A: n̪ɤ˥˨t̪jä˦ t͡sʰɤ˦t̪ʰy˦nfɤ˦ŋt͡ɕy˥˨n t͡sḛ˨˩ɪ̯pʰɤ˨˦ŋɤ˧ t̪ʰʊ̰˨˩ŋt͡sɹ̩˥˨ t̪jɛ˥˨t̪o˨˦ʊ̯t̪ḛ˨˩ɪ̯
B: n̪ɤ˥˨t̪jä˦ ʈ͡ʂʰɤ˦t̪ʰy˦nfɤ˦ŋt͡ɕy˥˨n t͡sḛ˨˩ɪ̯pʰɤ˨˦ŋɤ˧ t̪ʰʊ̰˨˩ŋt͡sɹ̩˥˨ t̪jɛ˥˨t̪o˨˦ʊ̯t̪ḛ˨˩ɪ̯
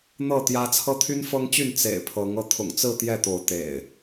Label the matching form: A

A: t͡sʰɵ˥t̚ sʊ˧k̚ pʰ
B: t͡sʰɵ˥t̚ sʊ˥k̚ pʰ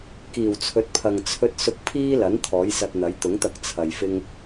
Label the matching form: A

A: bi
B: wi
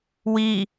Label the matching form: B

